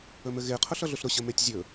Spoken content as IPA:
ɵ m ɘ ɣ e qʰ ʊ ɬ ʌ ɮ ʊ ɬ ɾ ʊ ɕ ə m e tʲ zʲ ɵ

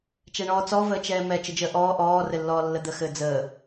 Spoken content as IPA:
t͡ʃ ɛ ɳ ɔː t͡s ɔ v əː t͡ʃ ɛː m ɛ t͡ʃ ɘ d͡ʒ əː ʔ ɔː ʔ ɔː r ɘ lː ɔː lː ə d̪ ə x ɘː d͡z əː

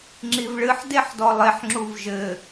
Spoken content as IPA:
ŋ͡ǁ i v ɭ ɨ ħ d e ħ d ɔ lˠ e ħ ŋ͡ǁ u v ʒ ɘ

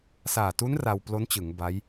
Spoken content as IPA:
s aː˨˩ t u˦˥ n r a˧ w p l o˦˥ n t͡ɕ ɯ˩˦ ŋ b a˦˥ j

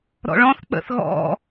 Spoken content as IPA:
ɾ ɔ̰ ɭ ɔ̃ θ k͡p ə̰ θ ɣ ɔ̰

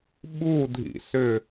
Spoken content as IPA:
ɓ u dʱ ḭ s ʏ

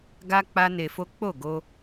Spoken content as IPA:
ɡ a˦ k͡p a˦ n e˧ f o˦ k͡p o˦˨ ɡ o˧

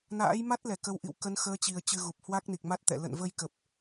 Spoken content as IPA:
n a̰ː˧˥ j m a˦˥ t̚ l ɛ˧˩ k ə˨˦ w ʔ ḭ˧˨ w k ə˨˦ n x əː˨˦ t͡ɕ i˨˩ ə̯ t͡ɕ ɨ˧ ɣ u˨˩ p̚ h w a˦˥ k̚ n i˨˩ k̚ m a˦˥ t̚ t̪ ɛ̰˧˨ l ə̰˧˨ n v ə˧ j k ə˨˩ p̚

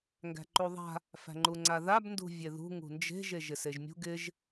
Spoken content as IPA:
ŋ ɡ æ̤ ǃ u ðˤ a̤ | f æ̤ ŋ͡ǃ u ŋ͡ǀ a ð a b n d ṳ vʲ e ð ṳ ŋ ṳ n d͡ʒ e̤ ʒ e ʒ ɪ s e ʒ mʲ ṳ ɡ ɪ ʒ

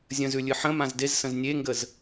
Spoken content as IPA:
zʲ ə̃ z ʉ lʲ ɨ ħ ə̃ m ã z d e z s ə̃ z nʲ e ŋ ɡ ə z

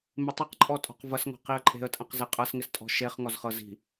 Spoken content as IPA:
m ɪ tˤ ɪ q ǃʼ ɔ tʼ ɔ̤ q v ɐ s ŋ ɔ̤ q i ə̯ ǃʼ e̤ ə̯ tʼ ɐ̃ q z e qʼ ɤ s ŋ ɪ s tʼ ɔ̤ ʃ e χ ŋ ɔ z χ ɤ z i̤

